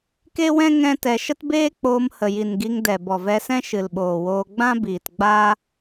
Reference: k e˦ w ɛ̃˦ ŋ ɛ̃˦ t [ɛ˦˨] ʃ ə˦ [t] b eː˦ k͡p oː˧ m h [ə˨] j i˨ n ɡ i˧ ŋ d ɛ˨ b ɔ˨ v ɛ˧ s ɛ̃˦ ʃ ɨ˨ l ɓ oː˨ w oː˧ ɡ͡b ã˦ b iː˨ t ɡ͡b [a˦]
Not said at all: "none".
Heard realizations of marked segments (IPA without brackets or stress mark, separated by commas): ɛ˧, t, ə˨, a˦